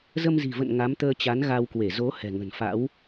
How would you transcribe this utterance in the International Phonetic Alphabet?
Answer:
z ə˧ m z i̤˨˩ v ə̰˧˨ n ŋ a˨˦ m t̪ əː˧ t͡ɕ a˨˦ n ɣ a˧ w k w e˧˩ z o˨˦ h ɛ̤˨˩ ŋ ə̤˨˩ n f a̰˧˥ w

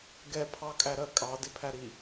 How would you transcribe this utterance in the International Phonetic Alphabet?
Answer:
ɡ ɛ pʰ ɑ kʼ æ ɾ ɜ kʼ ɑ d ɪ pʰ æ ɾ i

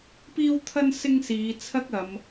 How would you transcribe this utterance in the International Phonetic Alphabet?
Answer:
p iː˥ w t̪ʰ ɐ˥ n s ɪ˥ ŋ s iː˨˧ t͡sʰ ɐ˥ k̚ ɐ˨˧ m

